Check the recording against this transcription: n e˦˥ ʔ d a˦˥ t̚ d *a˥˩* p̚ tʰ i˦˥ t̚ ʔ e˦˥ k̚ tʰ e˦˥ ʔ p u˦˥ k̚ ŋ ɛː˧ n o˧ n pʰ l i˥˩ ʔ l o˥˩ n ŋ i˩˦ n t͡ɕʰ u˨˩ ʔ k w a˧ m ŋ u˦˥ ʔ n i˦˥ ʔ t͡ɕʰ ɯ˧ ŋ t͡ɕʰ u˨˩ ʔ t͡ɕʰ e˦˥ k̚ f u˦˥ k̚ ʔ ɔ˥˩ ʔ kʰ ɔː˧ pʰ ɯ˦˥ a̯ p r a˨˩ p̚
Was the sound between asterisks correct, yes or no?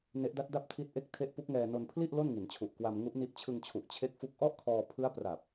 yes